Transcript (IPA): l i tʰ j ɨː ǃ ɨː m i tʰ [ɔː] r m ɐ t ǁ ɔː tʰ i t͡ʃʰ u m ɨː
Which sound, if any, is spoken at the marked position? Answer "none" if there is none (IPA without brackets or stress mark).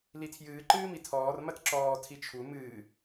ɔː